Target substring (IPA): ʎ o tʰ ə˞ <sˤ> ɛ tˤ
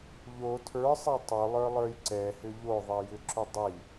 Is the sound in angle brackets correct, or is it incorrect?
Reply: correct